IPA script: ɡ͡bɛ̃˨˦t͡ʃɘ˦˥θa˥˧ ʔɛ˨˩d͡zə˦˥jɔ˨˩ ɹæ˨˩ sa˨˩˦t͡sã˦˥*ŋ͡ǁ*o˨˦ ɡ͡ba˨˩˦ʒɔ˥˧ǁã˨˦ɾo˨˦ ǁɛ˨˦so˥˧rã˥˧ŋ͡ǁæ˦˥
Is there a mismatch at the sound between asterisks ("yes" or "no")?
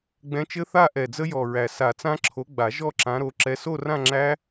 yes